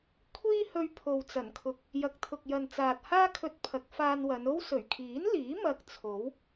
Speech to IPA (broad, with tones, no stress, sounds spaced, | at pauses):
kʷʰ iː˥ h ɵ˧ ɥ pʰ o˨ w t͡s ɐ˨˩ n kʰ ʊ˨ k̚ | j ɐ˨ k̚ t̪ʰ ʊ˨ k̚ j ɐ˨ n t͡s aː˨ t̚ h aː˥ kʰ ɵ˧ t̚ pʰ ɐ˨˥ k̚ f aː˧ n w ɐ˨˧ n o˥ w s ɵ˨˩ ɥ kʰ iː˨˥ n l iː˨˥ m ɐ˧ k̚ t͡sʰ o˨˥ w